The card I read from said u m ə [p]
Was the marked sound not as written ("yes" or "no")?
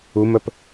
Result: no